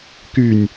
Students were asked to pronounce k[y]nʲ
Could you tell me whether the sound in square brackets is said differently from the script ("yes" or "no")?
no